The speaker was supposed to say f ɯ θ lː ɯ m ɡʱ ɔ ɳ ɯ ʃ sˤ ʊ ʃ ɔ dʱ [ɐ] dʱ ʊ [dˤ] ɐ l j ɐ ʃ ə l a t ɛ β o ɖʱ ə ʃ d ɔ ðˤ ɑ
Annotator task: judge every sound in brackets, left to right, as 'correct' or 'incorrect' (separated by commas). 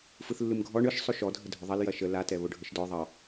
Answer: incorrect, incorrect